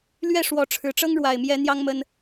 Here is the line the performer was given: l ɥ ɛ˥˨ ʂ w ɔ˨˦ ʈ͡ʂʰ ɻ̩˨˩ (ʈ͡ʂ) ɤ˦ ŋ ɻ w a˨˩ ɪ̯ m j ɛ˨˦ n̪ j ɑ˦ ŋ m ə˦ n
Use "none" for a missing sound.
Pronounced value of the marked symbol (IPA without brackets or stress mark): ʈ͡ʂ